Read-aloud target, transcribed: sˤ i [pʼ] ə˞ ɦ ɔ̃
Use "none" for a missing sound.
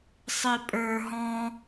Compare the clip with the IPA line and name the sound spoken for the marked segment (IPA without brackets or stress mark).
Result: pʼ